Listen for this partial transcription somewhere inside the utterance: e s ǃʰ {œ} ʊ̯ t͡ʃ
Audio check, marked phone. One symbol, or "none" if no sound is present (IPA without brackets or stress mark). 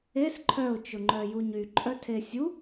œ